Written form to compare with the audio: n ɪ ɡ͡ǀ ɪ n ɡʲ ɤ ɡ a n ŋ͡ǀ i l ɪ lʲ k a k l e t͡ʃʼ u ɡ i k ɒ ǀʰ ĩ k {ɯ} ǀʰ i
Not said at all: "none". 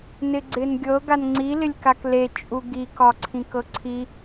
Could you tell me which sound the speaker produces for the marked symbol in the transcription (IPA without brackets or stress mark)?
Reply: ɤ